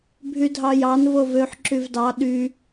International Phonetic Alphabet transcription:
bʱ y dʱ ɑ j ɑ n v o v ø ħ ǁ y v d ɑ ɗ y

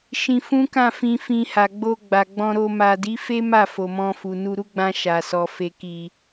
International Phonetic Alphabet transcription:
ʃ ĩ˧ f ũ˦ k ã˦˨ f ĩ˧ f ĩ˧ h a˨ ɡ͡b o˧ ɡ͡b a˨ ɡ͡b ɔ̃˧ ɾ o˧ m a˨ d i˨˦ f e˦ m a˦˨ f o˨ m ɔ̃˧ f u˨ n u˧ ɾ u˦ ɡ͡b ã˧ ʃ a˨ s ɔ˨ f e˨ k i˨

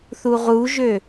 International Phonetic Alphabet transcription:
θ u ʁ u ʒ ø

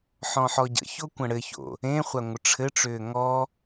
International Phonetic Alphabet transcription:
ħ ɔ̃ ħ ɔ ɟ ə̰ ç o kʷ ə̃ ɽ ɘ ç o̰ | ẽ χʷ a ŋʷ ə ʈ͡ʂʰ ɘ ʈ͡ʂ ʏː ŋ ɔ

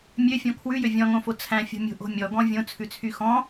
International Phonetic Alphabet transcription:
mʲ ø fʲ ɔ̃ kʰ w ʉ j ø vʲ ɔ̃ ŋ õ f o t͡sʰ æ̃ fʲ o̤ mʲ o̤ ʔ o̤ mʲ ɔ ɡ ɔ̃ vʲ õ t͡sʰ ʉ t͡sʰ y x ɔ̃

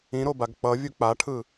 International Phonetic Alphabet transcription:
ĩ ɾ o b a ɡ k͡p ʌ vʲ u k͡p a ʈʰ ɯ

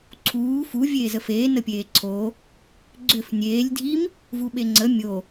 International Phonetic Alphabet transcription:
ǀʰ uː f u vʲ eː z ə f eː n ə pʲ eː ǀʰ o | ɡ͡ǀ ʏ f nʲ eː lʲ dʱ i m | v u ɓ e ŋ͡ǀ ə mʲ o

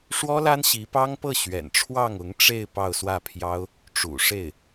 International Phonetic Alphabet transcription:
ʂ w ɔ˥ l a˥ n ɕ i˧˥ p ɑ˥ ŋ p ɤ˥˩ ɕ ɥ ɛ̰˨˩ n ʈ͡ʂʰ w ɑ˥˩ ŋ ʊ˧˥ ŋ ʈ͡ʂ e˥˧ ɪ̯ p ɑ˥˧ ʊ̯ s w ä˥˩ pʰ j ɑ˥ ʊ̯ | ʈ͡ʂ ṵ˨˩ ʂ e˥˩ ɪ̯

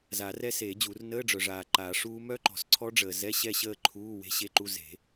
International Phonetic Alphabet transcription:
z a˨˩˦ r ɛ˦˥ s eː˨˩˦ d͡ʑ u˨˩˦ r n əː˧˥˧ ɖ͡ʐ œ˨ ʐ aː˨ ǃ aː˨˩˦ ʂ uː˦˥ m œ˦˥ ǃ ɔ̤˨ s ǀʰ ɔ˦˥ ɖ͡ʐ əː˨ z ɛ˧˥˧ ɕ ɛ˥˨ ɕ əː˥˨ ǃʰ uː˧˥˧ w e̤˦˥ ɕ e˦˥ ǃ u˧˥˧ z e̤˨˩˦

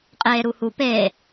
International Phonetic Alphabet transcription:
qʼ eː ɾ u h u p e

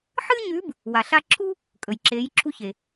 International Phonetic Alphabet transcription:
ħ ɨ˥ ɲ ʉ˧˥ b | w a˩ ɬ a˧ ǁʰ u˥ | kʼ ɵ˩ j ǁ eː˩˧ j ǁʰ u˧ ç e˩

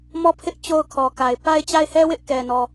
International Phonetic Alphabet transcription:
m ɔ˦˨ pʰ ɪ˦ ʔ t͡ɕ o˦ ʊ̯ kʰ ɔ˨ k a˨ ɪ̯ p a˦ ɪ̯ t͡ɕ a˦˨ ɪ̯ h ɛ˦ w ɪ˦ ʔ k ɛ˨ n ɔ˨

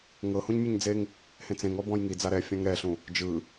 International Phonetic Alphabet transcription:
ŋ ɤ h ũ ɲ mʲ e ɲ d͡z e ŋ | h ẽ t͡s ẽ ŋ ɔ b ɔ̃ j ŋ i d͡z a ɾ ɛ fʲ ã ŋ ɾ ɛ ɬ ũ | d͡ʒ ɯ

